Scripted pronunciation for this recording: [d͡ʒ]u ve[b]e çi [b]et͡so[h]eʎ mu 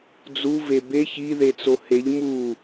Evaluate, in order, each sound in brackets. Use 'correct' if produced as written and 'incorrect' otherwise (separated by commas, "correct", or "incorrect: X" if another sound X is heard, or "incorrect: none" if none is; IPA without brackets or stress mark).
incorrect: d͡z, correct, incorrect: ð, correct